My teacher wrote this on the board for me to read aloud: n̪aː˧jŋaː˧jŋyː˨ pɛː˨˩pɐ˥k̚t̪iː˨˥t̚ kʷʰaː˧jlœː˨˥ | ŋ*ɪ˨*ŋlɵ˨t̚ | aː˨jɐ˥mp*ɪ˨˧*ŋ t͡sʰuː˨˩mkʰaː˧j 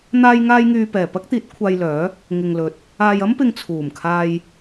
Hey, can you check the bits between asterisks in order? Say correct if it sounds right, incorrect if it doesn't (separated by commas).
correct, incorrect